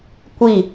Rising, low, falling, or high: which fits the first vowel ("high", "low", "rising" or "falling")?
falling